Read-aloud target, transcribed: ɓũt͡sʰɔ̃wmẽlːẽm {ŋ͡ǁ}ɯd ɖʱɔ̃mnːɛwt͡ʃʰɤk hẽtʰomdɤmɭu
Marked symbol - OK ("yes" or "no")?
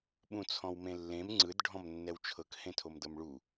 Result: no